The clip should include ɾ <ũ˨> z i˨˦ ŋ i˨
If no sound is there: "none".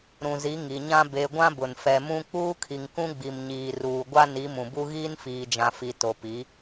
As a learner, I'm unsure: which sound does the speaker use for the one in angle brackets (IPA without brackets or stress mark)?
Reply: ũ˨